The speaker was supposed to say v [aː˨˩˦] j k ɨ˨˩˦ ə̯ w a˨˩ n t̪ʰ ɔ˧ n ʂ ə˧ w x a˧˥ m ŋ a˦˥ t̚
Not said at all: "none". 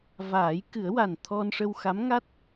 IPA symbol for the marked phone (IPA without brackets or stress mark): aː˨˩˦